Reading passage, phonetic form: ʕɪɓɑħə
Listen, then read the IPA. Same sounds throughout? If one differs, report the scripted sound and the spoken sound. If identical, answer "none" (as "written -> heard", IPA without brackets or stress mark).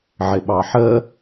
none